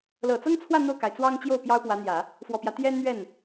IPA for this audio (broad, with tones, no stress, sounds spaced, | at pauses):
l ɤ˨˩ t͡s ɤ˥ ŋ t͡sʰ w ä˥˧ n̪ o˥˩ ʊ̯ k a˩ ɪ̯ t͡s w ɑ˥ ŋ t͡ɕ j o˥˩ ʊ̯ p j ɑ˥ ʊ̯ p w ä˧˥ n̪ j ä˨˩˦ | f w ɔ˨˩ p j ä˦ t̪ j ɛ˥ n n̪ ɥ ɛ˥˩ n